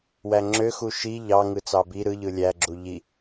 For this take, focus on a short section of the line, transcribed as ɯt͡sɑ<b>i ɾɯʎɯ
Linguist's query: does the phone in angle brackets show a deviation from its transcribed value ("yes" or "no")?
no